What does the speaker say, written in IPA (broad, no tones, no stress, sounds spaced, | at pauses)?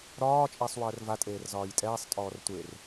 ɾ ɒː t͡ʃʼ eː sˤ w əː r v a tʼ eː r z ɒː j tʼ ɛː sˤ tʼ ɔː r tʷ e r